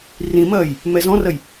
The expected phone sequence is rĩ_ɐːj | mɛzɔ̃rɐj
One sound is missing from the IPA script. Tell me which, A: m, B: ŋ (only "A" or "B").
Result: A